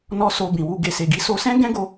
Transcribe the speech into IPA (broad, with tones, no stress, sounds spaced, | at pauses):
n ɔ˧ s o˧ b ĩ˨ w u˧ ɡ e˨ s e˨ ɡ i˨˦ s o˧ s ɛ̃˦ ɡ ɛ̃˦ ɡ o˧